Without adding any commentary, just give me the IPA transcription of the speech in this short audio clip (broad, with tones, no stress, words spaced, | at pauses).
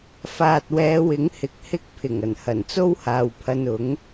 faː˨t̚wɛː˨˧wɪ˨˥ŋ hɪ˨k̚hɪ˥k̚ pʰɪ˨˩ŋɐ˨˩nhɐ˨˩nt͡so˥w haː˨wpʰɐ˧nʊ˨˥ŋ